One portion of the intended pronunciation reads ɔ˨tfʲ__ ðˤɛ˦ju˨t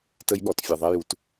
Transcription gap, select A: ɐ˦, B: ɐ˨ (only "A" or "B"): B